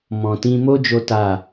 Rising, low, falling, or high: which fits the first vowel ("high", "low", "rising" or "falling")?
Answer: low